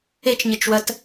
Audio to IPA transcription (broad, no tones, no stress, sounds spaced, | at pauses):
e t͡ʃ ɲ ɘ t͡ʃ w ɐ t